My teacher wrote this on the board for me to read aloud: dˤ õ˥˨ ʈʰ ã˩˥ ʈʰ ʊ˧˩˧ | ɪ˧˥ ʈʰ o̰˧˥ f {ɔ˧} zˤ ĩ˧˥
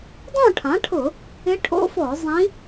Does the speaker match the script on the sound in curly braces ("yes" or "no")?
no